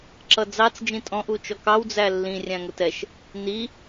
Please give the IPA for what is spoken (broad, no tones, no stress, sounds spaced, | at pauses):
ǁ ʌ d͡z ɑ t͡s d͡ʒ ĩ tʼ ɔ̃ ʔ u t͡ʃ ɔ k ɑ w d͡z æ lː ĩ rʲ æ̃ ŋ ʊ t ɛ ʃ | n i